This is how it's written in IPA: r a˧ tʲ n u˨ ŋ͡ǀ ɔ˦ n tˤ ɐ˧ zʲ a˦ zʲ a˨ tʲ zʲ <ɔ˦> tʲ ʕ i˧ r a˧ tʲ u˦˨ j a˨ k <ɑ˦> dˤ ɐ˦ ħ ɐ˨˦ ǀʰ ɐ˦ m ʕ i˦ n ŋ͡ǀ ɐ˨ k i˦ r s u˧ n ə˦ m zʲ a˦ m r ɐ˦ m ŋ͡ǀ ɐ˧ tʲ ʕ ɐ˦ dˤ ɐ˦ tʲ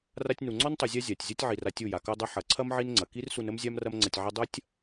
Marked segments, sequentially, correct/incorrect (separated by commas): correct, incorrect